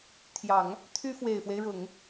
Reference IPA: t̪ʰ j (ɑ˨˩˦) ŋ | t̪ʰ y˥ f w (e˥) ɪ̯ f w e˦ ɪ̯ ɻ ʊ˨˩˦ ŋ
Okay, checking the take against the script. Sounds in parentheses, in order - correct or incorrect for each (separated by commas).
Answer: correct, incorrect